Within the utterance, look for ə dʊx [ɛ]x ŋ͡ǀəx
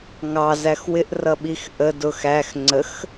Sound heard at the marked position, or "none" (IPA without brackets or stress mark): æ